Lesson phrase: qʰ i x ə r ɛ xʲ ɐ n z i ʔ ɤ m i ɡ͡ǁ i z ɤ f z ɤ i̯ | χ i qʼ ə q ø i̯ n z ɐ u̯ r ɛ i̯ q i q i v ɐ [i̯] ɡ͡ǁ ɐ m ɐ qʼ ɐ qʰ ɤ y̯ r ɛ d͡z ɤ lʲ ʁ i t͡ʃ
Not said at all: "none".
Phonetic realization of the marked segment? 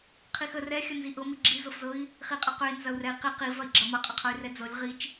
i̯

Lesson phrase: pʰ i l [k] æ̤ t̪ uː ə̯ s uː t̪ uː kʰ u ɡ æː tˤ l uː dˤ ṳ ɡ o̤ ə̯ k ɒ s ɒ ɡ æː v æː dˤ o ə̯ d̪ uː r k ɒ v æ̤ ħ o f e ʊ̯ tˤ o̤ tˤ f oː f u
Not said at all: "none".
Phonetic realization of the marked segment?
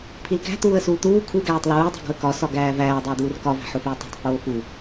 k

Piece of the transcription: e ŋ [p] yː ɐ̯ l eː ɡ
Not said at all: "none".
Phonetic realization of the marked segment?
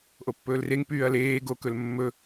p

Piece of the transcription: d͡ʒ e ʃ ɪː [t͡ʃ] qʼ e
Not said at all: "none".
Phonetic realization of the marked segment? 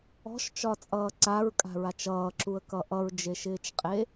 t͡ʃ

